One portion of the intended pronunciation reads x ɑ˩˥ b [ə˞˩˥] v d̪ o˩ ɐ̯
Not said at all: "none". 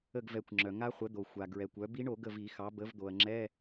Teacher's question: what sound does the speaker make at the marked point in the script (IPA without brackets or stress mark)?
ə˩˥